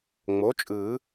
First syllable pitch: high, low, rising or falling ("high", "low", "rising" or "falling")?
rising